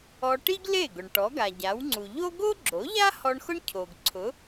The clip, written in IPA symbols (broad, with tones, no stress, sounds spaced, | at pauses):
ɔ˧ ʈ i˥ ɡ l e˥˩ ɡ ʊ˩ ɳ ʈ ɔ˩˥ ɡ a˩ ɟ a˩˥ w ŋ͡ǀ u˩ ʎ o˥ ɡ o˥ ɡ͡ǁ o˩˥ ʎ a˥ h ɔ˧ ɳ x ʊ˥ ɳ cʰ o˩ ɡ ǀʰ ʊ˩˥